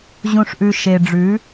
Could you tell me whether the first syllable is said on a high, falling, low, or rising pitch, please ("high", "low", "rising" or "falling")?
low